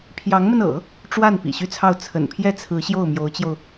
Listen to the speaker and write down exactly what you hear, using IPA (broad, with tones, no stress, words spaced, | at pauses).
pʰjɑ˧˥ŋmə˧n ɤ̰˨˩˦ | ʈ͡ʂwa˥˩n pḭ˨˩ɕy˥˧t͡sʰɑ˥˩ʊ̯ t͡sʰə̰˨˩npʰjɛ˥t͡sʰɹ̩˧˥ ɕjo˥˩ʊ̯mjo˧˥ʊ̯t͡ɕjo˧ʊ̯